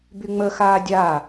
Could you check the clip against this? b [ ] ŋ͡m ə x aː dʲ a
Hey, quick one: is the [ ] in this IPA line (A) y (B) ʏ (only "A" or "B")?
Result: A